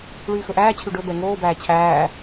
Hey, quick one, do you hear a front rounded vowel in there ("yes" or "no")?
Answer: yes